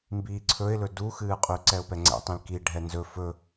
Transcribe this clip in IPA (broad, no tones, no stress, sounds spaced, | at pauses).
m b iː ǀʰ ɵ ɪ̯ l ɵ d u x ɨː qʼ y ǀ ɛ ʊ̯ p ɛ ŋ͡ǀ ɛ̰ tˤ ĩ l k i ɖʱ ɛ n z ɵ f ɵ